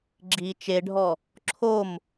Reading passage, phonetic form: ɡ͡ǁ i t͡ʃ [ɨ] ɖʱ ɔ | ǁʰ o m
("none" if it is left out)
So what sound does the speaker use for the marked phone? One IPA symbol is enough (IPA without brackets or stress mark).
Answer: e